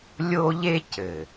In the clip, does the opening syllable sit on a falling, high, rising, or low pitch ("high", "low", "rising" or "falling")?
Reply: high